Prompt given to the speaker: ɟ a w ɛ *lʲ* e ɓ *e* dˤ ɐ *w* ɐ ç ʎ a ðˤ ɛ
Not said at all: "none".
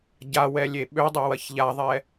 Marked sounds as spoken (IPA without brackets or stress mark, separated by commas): lʲ, ø, w